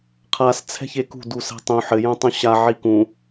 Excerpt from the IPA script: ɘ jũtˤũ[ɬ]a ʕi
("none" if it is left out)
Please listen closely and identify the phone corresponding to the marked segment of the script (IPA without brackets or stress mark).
ɕ